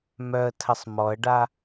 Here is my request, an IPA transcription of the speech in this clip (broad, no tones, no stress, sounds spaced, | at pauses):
m œ ə̯ tʰ ə sˤ m ɔ ə̯ ɖ a